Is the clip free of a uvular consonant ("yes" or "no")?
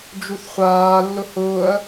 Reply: no